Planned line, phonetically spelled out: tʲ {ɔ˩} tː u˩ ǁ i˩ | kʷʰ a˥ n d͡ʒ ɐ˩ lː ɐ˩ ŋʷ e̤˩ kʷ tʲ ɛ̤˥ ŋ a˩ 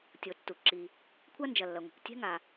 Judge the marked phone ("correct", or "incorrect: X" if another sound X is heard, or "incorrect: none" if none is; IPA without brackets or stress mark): incorrect: o˩